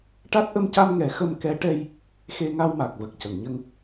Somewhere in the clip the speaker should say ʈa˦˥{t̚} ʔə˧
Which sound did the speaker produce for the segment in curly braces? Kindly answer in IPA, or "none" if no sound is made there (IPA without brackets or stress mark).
t̚